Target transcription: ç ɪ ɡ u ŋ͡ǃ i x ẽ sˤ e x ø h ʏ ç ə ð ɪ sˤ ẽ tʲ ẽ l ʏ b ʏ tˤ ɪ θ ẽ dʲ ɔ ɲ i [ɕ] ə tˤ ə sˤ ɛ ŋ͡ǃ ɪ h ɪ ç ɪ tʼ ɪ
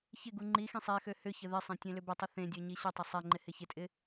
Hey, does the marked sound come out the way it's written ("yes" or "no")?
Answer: yes